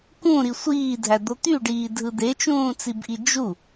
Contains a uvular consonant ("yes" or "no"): no